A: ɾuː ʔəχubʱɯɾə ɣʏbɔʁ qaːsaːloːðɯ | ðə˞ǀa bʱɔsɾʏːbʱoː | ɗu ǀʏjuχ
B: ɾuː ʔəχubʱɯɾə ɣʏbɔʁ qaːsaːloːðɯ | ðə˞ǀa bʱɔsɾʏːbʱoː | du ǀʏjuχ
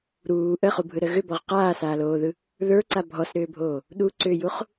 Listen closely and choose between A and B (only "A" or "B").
A